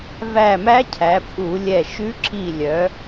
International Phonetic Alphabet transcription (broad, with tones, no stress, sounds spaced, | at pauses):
v æ˧˩ m æ˧˥ cʰ æ˩˧ pʼ u˧˩˧ lʲ ɛ˧˩ ʃ ʉ˧˥ ǁ i˧˩ lʲ œ˩˧